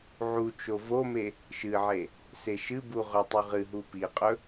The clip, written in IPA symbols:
ʕut͡ʃo vome | ʃɨʕe | seʃɨbu ʁɵtˤʉ ʁɨɦu piqʼɵ

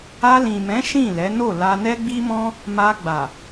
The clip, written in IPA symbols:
a˧lĩ˨mɛ̃˨˦ ʃĩ˦˨lɛ˨˦no˦˨ la˧nɛ˦ɡ͡bi˦mɔ̃˦ | ma˧ɡ͡ba˨

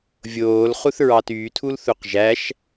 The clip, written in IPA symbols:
vʲoːlχuθɹɑ tytʰulθuq ʒæʃ

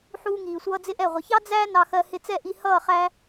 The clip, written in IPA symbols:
ħuː˧ŋiː˨sʷʌː˧ d͡zɪ˦ʔɛ˦˨ ʁʷə˨çɑ˦ d͡zæː˦ nɑ˧xɜ˧ hɪ˧t͡sɛ˦˨ʔi˧ hʌː˦˨ χæ˧

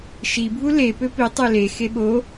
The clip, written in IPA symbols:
ʃibʱu le pøpi tˤele xeɓo

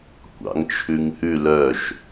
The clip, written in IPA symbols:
kʷɑ̰ŋt͡ʃʰʉŋhʉ lœʃ

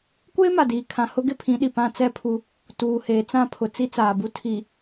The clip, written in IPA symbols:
kʷeː˦ma˨diː˨kʰã˨ hʊ˦ɡɪ˦pʰĩ˨˦ɗi˨ pã˦t͡sɛ˦pʰu˦ | tuː˨heː˨ t͡sã˦˨pʰʊ˨ t͡si˦t͡saː˨bu˦ tʰi˨

